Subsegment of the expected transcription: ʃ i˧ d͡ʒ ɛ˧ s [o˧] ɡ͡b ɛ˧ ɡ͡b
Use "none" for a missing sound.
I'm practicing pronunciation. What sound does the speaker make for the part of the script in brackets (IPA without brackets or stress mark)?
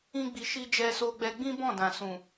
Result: o˧